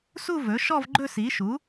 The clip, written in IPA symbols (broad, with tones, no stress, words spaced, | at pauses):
su˥˧vɵ˩˥ʃɔ˥˧v ɡ͡ǃɵ˥˧si˩˥ʃu˩˥